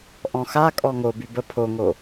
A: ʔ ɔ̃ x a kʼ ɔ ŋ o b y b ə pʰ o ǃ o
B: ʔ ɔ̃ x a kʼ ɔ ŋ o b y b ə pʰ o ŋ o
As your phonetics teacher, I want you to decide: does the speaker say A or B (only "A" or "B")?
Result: B